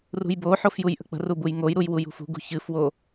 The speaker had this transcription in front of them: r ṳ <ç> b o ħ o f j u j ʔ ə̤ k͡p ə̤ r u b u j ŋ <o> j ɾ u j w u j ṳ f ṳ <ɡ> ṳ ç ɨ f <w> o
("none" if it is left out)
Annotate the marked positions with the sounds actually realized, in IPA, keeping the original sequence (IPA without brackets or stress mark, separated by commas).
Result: j, o, ɡ, w